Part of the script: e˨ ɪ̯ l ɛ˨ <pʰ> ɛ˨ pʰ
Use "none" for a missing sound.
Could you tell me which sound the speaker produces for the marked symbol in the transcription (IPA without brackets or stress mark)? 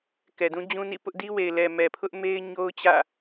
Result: m